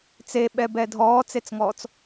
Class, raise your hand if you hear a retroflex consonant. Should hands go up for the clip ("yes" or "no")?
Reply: no